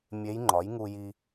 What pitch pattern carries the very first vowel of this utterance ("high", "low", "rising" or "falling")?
rising